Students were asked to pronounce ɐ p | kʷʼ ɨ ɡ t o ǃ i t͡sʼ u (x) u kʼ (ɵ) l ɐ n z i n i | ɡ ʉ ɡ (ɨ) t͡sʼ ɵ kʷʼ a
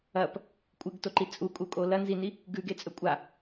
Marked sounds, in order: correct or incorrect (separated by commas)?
incorrect, incorrect, incorrect